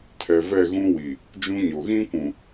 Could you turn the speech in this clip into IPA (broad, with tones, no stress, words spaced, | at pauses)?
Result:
tʰɛ˨ vɛ˦˨ɣũ˦wi˨ | d͡ʒũ˦ɲo˨ ɣĩ˦kʷũ˨